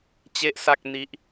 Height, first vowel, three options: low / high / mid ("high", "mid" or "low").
mid